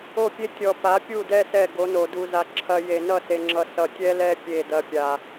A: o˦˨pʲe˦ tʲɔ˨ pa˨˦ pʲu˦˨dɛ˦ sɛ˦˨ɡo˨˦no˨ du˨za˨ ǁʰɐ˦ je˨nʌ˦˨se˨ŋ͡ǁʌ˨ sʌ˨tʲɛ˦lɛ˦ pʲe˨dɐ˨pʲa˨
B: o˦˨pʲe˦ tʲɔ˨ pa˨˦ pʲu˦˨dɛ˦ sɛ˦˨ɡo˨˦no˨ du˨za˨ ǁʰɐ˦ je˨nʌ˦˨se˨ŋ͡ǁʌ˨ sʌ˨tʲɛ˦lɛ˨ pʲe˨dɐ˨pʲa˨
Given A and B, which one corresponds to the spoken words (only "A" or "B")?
A